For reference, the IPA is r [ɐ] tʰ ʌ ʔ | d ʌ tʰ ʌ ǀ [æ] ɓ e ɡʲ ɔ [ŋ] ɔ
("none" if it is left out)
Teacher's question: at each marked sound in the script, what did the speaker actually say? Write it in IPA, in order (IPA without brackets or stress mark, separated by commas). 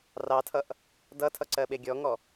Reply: ɑ, ɜ, ŋ